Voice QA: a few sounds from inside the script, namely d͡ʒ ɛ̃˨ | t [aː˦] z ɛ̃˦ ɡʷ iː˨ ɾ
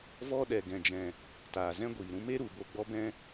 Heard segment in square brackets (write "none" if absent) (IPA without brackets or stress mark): aː˨